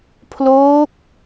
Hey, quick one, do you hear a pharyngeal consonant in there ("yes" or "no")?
no